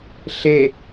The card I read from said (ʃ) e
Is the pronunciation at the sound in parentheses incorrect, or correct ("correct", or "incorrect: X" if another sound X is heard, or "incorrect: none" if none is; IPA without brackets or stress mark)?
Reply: incorrect: ɬ